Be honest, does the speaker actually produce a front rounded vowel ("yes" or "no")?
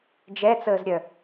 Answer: yes